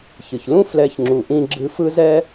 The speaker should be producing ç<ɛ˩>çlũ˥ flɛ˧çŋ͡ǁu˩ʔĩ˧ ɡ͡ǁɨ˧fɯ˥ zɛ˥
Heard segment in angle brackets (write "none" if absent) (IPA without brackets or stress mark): ɨ˩